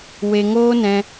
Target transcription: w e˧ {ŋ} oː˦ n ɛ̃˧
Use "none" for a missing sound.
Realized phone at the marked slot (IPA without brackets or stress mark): ŋ